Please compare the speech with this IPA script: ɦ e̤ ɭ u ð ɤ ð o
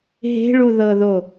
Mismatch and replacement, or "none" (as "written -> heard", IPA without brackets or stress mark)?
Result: none